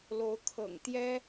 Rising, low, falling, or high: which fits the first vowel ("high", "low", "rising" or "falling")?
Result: rising